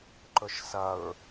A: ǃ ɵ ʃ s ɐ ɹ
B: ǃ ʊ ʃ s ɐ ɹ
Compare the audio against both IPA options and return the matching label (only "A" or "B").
A